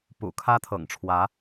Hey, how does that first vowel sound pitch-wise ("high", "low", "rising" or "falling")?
low